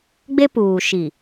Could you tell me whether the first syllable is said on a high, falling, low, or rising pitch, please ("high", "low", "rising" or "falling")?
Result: high